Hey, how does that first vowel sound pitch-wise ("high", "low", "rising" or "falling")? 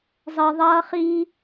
low